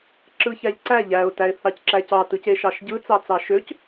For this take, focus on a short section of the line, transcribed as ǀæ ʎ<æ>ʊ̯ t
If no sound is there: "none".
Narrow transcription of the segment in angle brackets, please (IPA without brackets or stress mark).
æ